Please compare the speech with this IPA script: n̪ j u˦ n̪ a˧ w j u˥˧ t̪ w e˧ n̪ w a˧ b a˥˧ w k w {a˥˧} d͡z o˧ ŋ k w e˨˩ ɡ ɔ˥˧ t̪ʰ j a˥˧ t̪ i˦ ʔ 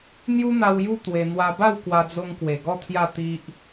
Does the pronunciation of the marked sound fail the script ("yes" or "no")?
yes